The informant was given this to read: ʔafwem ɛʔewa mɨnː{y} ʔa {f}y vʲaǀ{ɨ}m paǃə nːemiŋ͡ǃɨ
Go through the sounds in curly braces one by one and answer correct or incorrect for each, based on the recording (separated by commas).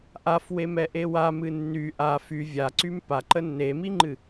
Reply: correct, correct, incorrect